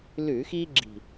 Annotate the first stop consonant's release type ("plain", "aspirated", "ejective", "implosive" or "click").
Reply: click